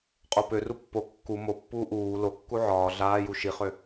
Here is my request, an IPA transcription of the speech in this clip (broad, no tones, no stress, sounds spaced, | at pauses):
qʼ o p ø r u pː o kː u m o pː uː ʔ uː l o kː u ʕ ɒː ɮ aː j u ʃ i χ ø